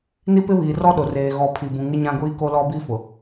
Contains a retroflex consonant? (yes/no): no